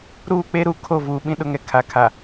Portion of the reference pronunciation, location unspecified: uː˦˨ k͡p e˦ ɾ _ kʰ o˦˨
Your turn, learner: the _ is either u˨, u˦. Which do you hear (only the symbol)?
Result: u˨